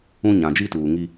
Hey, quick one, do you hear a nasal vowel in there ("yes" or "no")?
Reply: yes